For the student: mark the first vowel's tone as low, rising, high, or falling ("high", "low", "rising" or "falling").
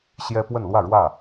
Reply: high